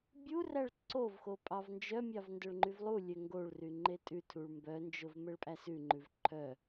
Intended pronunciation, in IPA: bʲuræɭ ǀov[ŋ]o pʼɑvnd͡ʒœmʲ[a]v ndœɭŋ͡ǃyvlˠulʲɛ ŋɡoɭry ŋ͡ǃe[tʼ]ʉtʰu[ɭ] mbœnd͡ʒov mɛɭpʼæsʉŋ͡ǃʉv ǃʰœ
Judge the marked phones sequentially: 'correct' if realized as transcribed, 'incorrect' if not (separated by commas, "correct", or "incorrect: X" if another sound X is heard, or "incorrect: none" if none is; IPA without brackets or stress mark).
incorrect: x, incorrect: ɑ, correct, correct